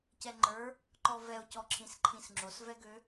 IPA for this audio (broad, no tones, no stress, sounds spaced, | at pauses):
c ɛ ŋ͡ǃ ə˞ | ǃ ɔ v ɛ o̯ c ɔ ǁʰ ĩ s ǃʰ ĩ s ŋ͡ǁ o s v ɛ ɡ ø